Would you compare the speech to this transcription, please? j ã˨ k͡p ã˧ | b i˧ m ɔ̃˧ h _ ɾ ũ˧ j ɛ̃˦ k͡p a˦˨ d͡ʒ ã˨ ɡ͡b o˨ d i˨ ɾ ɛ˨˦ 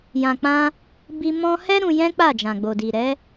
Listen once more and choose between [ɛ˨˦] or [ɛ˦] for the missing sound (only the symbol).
ɛ˦